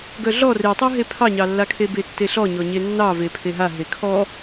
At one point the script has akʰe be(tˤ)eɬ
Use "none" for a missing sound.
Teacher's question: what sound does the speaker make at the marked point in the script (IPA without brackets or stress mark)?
tː